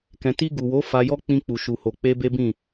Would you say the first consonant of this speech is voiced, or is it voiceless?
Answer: voiceless